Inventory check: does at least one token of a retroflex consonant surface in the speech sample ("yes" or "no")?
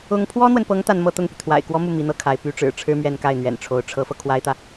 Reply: yes